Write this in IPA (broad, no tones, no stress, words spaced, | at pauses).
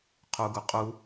qʰuɡu qʼu